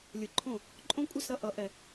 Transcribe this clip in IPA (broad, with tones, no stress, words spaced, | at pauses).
lʲɯ˨˩˦ǃʰõ˦˨ | ǃʼõ˦kʷʼi˦˨sɾʌ˦ ʔʌ˨˩˦ʔɛ˨